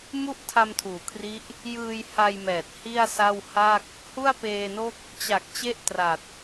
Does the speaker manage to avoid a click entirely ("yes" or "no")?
yes